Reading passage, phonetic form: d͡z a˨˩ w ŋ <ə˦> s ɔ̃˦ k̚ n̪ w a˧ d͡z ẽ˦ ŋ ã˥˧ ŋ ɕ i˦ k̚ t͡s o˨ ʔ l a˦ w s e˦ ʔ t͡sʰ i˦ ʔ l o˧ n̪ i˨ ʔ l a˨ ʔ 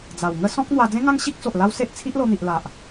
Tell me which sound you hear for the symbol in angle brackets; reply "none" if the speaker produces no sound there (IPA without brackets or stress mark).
ə˦